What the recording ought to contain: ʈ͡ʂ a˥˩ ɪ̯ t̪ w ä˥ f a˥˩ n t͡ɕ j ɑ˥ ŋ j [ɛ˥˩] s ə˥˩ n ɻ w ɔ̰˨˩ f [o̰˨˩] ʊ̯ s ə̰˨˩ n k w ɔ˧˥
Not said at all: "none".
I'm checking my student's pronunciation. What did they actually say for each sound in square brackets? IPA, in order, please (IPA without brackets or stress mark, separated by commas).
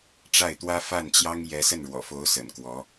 ɛ˧˥, o˧˥